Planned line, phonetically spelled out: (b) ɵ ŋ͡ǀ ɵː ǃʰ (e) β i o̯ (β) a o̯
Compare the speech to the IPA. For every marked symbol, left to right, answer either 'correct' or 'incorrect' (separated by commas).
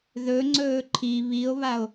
incorrect, incorrect, correct